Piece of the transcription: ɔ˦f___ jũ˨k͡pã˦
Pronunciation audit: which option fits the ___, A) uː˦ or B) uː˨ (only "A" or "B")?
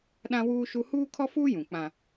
A